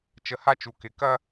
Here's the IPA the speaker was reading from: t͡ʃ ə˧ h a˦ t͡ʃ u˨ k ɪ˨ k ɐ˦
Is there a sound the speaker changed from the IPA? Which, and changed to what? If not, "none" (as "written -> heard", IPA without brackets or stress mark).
none